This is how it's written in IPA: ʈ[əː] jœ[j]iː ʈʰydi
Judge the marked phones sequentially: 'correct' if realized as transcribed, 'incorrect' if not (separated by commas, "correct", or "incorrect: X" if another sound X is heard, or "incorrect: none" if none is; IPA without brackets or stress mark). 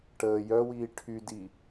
correct, incorrect: w